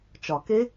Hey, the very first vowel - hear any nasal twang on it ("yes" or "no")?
no